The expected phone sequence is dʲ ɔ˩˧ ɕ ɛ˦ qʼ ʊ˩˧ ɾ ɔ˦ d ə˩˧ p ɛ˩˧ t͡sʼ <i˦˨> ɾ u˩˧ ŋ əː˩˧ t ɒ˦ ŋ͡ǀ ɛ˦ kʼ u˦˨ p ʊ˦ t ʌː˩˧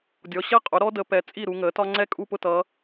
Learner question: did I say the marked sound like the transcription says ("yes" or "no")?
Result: yes